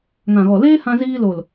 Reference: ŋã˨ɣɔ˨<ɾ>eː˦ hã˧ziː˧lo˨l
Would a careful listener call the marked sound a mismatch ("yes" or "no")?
yes